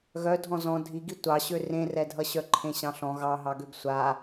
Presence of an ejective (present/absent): absent